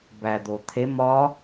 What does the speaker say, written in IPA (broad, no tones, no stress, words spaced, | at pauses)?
bæd̪ot̪ʰem ɒ